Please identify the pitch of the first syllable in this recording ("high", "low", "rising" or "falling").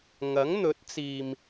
rising